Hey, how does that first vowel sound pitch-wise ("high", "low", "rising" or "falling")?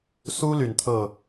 high